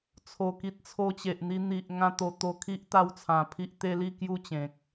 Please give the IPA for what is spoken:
t͡sʰo˨˩ki˨t̚ t͡sʰo˧t͡ɕe˨ʔ n̪i˧n̪i˨ʔ ŋã˦t̪o˧ t̪o˧kʰi˦ʔ t̪a˦wt͡sʰã˧pʰi˦ʔ t̪e˦li˥˧ kju˥˧t͡ɕẽ˨k̚

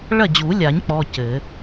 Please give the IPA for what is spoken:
ɭɐ˥˩d͡ʑu˨˩˦lʲa˨˩˦ɲ k͡pɔ˧˥˧cɘ˨˩˦

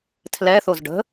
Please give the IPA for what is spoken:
tʰlɛθoz ɖə̤

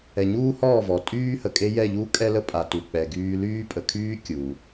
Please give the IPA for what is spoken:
ɛ˨ɲuː˦hɔː˦˨ vɔ˨ tʼyː˦hə˨kʼe˦ jɛ˦˨ʎuː˦ kʼɛ˦lə˦pʼa˨tu˨ k͡pɛ˨ɡyː˦ lyː˦pʼə˨kʰyː˦ kʲuː˨

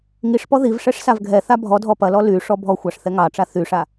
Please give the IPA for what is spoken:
ŋiʂpɔ ðiv ʂɛʂsavɡʱɛθa bʱɔ dʱɔpɐlɔ ly ʂɔbʱɔxʷɑʂ θɛŋɑʈ͡ʂa θyʂa

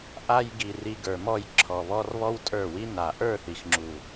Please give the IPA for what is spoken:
ʔa˧jɡi˨ ri˧ɡə˞˨mɔ˦˨j ǁʰɔ˨βɔ˧r βɔ˦wtʼə˞˦˨wi˦ na˨ʔə˞˦˨θi˨xŋ͡ǁu˨

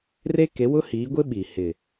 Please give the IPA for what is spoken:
re˦ ke˨˦wʊ˦hiː˨˦ɡʷɪ˦ ɓi˨ hɪ˨

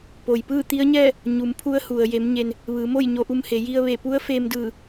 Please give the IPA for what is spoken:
po˩jpɯː˥˨t̪i˧˥ə̯ɲɛː˥˨ | ɲu˩˧mpʰu˧˥ə̯ hu˩ə̯ je˩˧mɲe˩n | ʋɯː˩˧mo˥˨j ɲo˧ʔu˧mhe˩˧ ji˧ə̯ ʋe˧˩pu˧˥ə̯ feː˧mdɯː˧˩

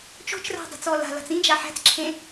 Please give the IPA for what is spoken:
t͡ʃo̤t͡ʃræ̤ dˤæ̤t͡sɔːla̤la̤t͡s ĩd͡ʒa ħæ̤t͡sǁʰẽ

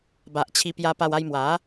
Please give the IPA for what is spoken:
ba˨ʔ t͡ɕʰi˧pja˧pa˧w a˧j mwa˨˦

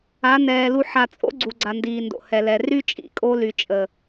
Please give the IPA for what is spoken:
a˨˦nɛː˨lu˧ ħa˨t͡sʼo̰˦ɡ͡ǀu˨ ɡ͡ǀa˨ndiː˨ndo̰˨ hɛ˨lɛ˨ ry˦t͡ʃʼḭ˦˨kʼo˧ ly˨t͡ʃʼə˨

